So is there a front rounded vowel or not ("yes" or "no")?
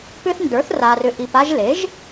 yes